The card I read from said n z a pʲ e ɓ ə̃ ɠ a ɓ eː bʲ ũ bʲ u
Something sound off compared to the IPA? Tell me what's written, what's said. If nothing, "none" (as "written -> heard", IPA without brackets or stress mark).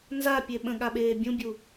none